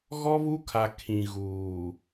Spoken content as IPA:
ɣɔ˦βu˦kʰa˨ kʰĩ˨ɣuː˨

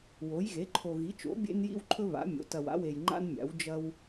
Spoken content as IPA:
wo˩˥j ɣe˩˥ǃʰo˨ ɣi˩˥t͡ʃo̰˩˥ bʲḛ˦njḭ˦wǃʰɵ˦ βa̰˩˥mʲo̰˩˥ tɐ˨wa̰˩˥ we˨jŋ͡ǃa̰˦nmʲa̰˩˥w d͡ʒɐ˦w

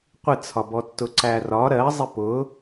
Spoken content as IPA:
qʷɪt͡sʰɒbɔtːʊ ǀærɒ ɾɜzˤɪ pʊ

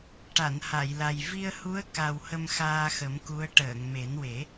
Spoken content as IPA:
ʈa˨˩˨nha˨˩˨jla˨˩j vi˧ə̯hu˧˥ə̯ ka˨˩w hə˧mxaː˧xə˨˩˦m ku˧˥ə̯ ʈəː˨˩˨ŋme˨˩˦nwe˨˩˦

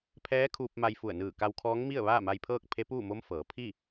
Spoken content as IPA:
pʰɛː˧˥kʰuː˧p̚ ma˧j fu˧˩ə̯nɯː˧˩ ka˧wkʰɔː˧˥ŋmi˥˨ə̯ ʋaː˥˨ma˧jpʰɤː˥˨k̚pʰe˧˥ puː˥˨mo˧˥mfɤː˩˧ pʰi˥˨

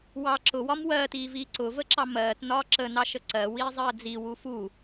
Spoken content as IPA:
wɑ ǁʊwɒm wɜːtiːviː ǀʊvəǁɑ mɜːtnɒː ǁənɑʃə ǀɜwiːzˤɜː d͡ziwu fu

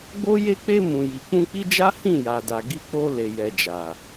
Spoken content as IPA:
ɡ͡bo˦ je˧k͡pe˧ mũ˨ji˨ k͡pũ˧k͡pi˦ d͡ʒa˦ hĩ˦˨ ja˨da˨ ɡi˧k͡po˧ le˨jɛ˨d͡ʒa˨

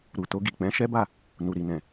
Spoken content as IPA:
ɾu˨to˧ɡi˨k͡pɛ̃˨˦ ʃɛ˦ba˦˨ | nu˨ɾi˨nɛ̃˨

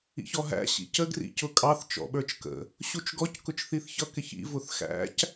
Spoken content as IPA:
ḭçɔɦæ̰ ɕḭcə ɡrḭcʊkʼɑθ t͡ʃɔ̰ɓə˞t͡ʃkə̰ | ɕut͡ʃɡɔc kʊt͡ʃθiθçʌ kɪçḭ vʊθxæ̰c

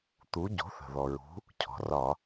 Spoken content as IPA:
t̪u˩˥ ɟo̤˩˥θə̤˩ðɔ˩ ɹṳ˩˥ | cʰɔ̤˩rɒ˧˩˧

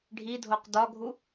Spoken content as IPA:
ɖʱidʱoq dɒɡʱu

